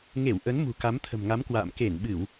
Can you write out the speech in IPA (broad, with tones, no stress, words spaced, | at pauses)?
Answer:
ŋe˧˩w ʔə˨˦nmṳ˨˩ ka˨˦mt̪ʰə̤˨˩mŋa˨˦m kwa̰ː˧˨m ke˧˩nɓɨ˧˩˨w